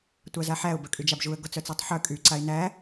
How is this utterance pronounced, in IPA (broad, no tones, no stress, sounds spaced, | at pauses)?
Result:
tʷ a z a ħ æ ʊ̯ b œ kʼ y d͡ʒ a b ʒ u ə̯ ɡ ɔ t͡s œ t͡s ɔ tˤ ħ œ kʼ y ǀ a ɪ̯ n æ